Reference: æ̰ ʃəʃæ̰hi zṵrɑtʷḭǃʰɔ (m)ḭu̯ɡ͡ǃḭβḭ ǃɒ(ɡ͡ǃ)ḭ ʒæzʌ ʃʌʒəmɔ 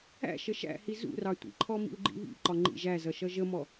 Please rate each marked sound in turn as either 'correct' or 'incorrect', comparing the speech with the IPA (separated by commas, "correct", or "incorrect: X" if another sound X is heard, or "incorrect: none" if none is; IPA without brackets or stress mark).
correct, incorrect: ŋ͡ǃ